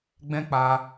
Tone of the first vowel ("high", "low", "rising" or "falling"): high